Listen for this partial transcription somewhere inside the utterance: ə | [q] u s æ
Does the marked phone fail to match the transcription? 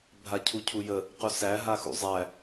no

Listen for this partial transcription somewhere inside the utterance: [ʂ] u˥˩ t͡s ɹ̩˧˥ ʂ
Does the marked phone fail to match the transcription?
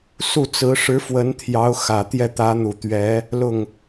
yes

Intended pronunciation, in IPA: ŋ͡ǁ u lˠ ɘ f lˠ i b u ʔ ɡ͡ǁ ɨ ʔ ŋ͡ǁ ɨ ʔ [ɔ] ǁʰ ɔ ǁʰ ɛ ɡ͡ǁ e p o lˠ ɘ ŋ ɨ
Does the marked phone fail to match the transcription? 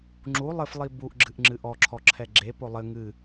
no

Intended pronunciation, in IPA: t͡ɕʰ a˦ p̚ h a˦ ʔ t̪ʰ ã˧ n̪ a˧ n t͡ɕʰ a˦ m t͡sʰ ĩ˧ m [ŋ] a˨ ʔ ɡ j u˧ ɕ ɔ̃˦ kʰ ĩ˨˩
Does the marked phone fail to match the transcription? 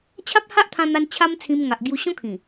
no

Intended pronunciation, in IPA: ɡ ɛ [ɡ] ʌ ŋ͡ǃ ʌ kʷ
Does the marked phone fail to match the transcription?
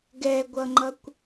yes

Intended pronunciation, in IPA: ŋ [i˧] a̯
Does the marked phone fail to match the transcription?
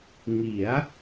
yes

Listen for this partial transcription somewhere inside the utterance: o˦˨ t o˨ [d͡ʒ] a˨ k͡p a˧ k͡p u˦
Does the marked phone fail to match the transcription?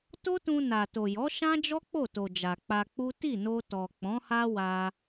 no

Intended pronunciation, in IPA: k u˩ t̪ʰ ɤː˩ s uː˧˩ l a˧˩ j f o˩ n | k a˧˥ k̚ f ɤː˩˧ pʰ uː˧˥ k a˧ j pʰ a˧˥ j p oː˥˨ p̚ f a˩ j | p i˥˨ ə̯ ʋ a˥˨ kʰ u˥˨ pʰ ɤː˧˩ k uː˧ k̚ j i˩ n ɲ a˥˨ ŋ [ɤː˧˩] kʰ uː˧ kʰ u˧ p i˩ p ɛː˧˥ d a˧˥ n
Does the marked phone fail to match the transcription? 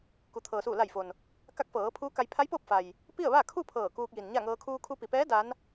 yes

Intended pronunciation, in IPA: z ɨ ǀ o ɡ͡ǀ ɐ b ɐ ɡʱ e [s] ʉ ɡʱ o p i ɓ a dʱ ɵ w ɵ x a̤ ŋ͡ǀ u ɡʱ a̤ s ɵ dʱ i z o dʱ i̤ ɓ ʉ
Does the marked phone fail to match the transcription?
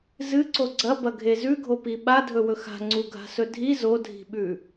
yes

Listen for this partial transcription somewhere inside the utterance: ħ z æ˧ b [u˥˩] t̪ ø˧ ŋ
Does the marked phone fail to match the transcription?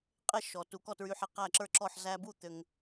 no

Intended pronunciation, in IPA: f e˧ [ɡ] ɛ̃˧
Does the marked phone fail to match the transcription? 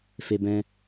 yes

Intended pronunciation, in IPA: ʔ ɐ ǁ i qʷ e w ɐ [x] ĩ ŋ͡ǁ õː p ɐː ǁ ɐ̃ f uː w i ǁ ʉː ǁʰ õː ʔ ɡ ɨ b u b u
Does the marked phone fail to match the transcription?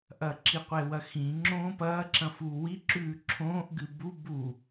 no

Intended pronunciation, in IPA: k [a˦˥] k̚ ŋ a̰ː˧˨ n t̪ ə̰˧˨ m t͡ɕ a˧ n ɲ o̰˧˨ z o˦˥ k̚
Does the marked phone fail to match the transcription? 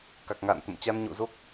yes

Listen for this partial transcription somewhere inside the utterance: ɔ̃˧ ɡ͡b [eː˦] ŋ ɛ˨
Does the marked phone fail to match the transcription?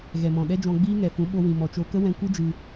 yes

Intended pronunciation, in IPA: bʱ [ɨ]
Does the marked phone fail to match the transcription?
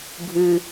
no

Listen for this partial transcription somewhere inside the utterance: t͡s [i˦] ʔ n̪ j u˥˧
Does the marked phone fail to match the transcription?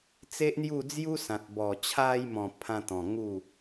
yes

